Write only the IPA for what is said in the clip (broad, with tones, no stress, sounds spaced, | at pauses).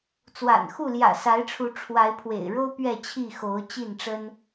t͡s w a̰˨˩ n x u˥˨ l j ä̰˨˩ s a˨˦ ɪ̯ ʈ͡ʂʰ u˨˦ ʈ͡ʂʰ w a˨˦ ɪ̯ pʰ w ḛ˨˩ ɪ̯ ɻ o˦ ʊ̯ p ɥ ɛ˥˨ t͡ɕʰ i˥˨ x o˨˦ ʊ̯ t͡ɕ i˥˨ n ʈ͡ʂ ə˦ n